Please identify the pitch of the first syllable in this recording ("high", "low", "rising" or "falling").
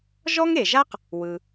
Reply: high